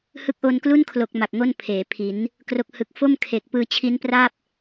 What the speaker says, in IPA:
hɯ˦˥k̚ʔo˧nklu˥˩nkʰlo˨˩k̚ ma˨˩k̚ŋo˥˩n pʰeː˩˦pʰi˩˦n | kro˥˩k̚hɯ˦˥k̚ fo˥˩mkʰeː˨˩k̚pɯː˧ t͡ɕʰi˦˥npra˥˩p̚

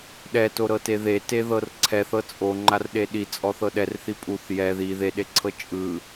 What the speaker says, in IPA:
ɗɛtoɾɤte ðeteðɤr ǀʰɛθɤ t͡sʼoŋ͡ǃarɗe ɗit͡sʼɔθɤ ɗɛrθi pʼuθ jɛ ði ðeɗeǀʰɤ t͡ʃʼɯ

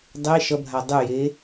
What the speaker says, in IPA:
dˤe ʃʌbʱa dˤʉje

